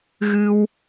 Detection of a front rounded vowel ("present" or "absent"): absent